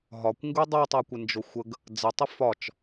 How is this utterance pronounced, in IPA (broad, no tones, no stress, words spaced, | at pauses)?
ɦɒkʷŋɡu dˤutˤakʷɪnd͡ʒo xʷəɡ | d͡zətˤɪ fɒt͡ʃ